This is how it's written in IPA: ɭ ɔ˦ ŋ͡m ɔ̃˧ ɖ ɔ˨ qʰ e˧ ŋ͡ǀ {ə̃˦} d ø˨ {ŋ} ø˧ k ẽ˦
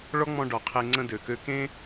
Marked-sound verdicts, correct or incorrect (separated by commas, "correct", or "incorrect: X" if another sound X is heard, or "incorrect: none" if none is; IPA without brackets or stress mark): correct, incorrect: k